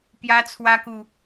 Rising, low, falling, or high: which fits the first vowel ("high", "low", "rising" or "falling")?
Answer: high